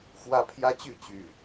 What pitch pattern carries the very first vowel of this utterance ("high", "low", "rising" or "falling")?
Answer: high